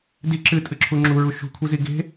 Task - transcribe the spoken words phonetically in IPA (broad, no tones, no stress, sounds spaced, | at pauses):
d i ǁ ɨ tʼ ɨ ǁʰ u ŋ͡ǁ u ɹ u ʃ ṳ kʷʰ i z i ɡ e̤